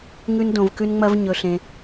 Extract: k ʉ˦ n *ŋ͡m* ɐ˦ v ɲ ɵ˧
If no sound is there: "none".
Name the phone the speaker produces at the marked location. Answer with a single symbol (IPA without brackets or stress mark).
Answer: ŋ͡m